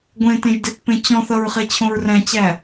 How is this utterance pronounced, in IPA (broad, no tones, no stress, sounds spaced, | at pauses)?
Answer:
ɡʷ ẽ t ẽ ʒ d e t p ẽ t͡ɕ ɔ̃ θ ʌ ɹ χ e t͡ɕʰ õ ɹ r æ̃ t͡ɕ æ